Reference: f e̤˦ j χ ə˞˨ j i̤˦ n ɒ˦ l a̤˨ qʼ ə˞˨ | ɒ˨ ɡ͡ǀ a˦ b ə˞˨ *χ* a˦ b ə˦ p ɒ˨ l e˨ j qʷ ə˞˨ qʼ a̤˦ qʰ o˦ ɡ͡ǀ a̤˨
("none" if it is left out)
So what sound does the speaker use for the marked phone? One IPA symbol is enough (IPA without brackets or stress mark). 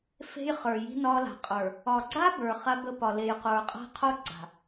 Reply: χ